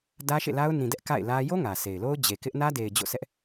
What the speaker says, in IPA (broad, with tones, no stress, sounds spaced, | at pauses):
d ä˦ ʃ ḛ˦˨ l a˦ ʊ̯ n ĩ˨ d ɛ˦ ʔ k a̰˦˨ ɪ̯ l ä˦ j o˦ ŋ ä˨ s e˨ ɪ̯ l o˦ ʊ̯ d͡ʑ e˨ k ɪ˦ ʔ n ä˦ d e˨ ɪ̯ d͡ʑ o̰˦˨ s ɛ˦ ʔ